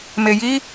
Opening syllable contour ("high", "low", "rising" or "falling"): low